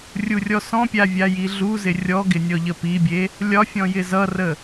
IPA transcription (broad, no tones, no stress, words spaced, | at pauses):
rʲurʲɔsɔ̃pʲa vʲajiɮuzɪ rʲɔɡɪ nʲɔʎəpibʲe | lʲɒfʲɔ̃ jɪzʌrə